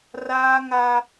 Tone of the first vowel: high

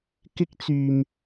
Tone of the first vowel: high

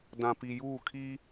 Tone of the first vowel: low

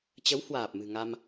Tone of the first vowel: rising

